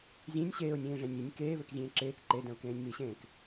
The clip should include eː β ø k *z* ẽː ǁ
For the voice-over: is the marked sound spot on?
no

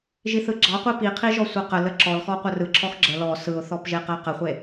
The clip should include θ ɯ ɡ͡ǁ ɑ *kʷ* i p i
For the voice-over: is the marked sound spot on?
no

